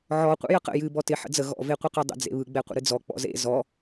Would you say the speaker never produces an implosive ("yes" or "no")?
yes